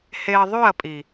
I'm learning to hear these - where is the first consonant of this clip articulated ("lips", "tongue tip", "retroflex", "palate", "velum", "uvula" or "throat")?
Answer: throat